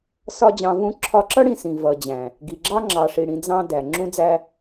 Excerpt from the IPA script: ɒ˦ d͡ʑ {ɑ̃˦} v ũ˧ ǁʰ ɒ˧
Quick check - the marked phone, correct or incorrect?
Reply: incorrect